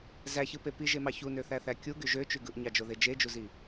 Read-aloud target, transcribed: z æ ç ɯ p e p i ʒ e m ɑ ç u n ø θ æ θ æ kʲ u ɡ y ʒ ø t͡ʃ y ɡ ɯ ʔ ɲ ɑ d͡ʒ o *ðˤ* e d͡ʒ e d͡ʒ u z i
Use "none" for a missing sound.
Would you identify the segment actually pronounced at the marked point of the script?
ð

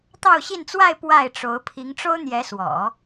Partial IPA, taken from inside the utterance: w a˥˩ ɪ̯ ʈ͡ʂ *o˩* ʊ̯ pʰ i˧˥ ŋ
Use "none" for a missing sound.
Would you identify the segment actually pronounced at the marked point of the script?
o˧˥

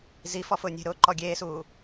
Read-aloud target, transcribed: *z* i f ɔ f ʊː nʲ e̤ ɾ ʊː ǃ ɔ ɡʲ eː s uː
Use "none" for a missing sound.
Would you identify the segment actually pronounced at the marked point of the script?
z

